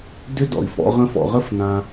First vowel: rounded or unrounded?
rounded